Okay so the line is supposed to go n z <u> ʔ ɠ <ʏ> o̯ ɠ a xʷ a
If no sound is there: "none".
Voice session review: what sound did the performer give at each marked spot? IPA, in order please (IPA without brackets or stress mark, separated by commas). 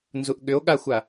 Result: u, ʏ